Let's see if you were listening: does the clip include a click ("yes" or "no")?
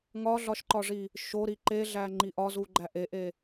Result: yes